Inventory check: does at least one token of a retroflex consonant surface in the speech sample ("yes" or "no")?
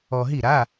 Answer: no